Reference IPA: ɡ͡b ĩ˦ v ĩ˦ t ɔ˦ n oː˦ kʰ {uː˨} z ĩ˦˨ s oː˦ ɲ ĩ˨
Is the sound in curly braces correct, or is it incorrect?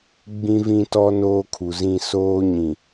incorrect